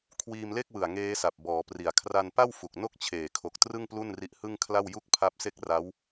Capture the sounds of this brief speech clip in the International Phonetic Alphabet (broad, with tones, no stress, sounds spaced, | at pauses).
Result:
kʰ w iː˧ m l e˥˩ k̚ w ɯ˨˩ a̯ ŋ eː˦˥ s a˨˩ p̚ b ɔː˩˦ p r i˨˩ a̯ kʰ r a˧ n p a˥˩ w f u˨˩ k̚ n o˥˩ k̚ t͡ɕʰ eː˨˩ kʰ o˨˩ k̚ t r ɯ˥˩ ŋ p l u˥˩ n r i˦˥ ʔ h ɯ˥˩ ŋ kʰ l a˥˩ w j u˥˩ k̚ pʰ a˦˥ p̚ s e˥˩ k̚ r a˦˥ w